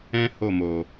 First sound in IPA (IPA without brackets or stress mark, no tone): ɛ̃